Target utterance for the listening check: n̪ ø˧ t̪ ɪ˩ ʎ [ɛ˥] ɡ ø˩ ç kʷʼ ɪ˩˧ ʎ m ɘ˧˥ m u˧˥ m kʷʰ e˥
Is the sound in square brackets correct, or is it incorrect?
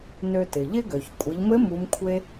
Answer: incorrect